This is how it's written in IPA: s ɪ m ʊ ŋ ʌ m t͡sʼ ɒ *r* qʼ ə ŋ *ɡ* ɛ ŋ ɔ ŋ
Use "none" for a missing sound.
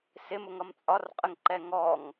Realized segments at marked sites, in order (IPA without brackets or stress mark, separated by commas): r, ǃ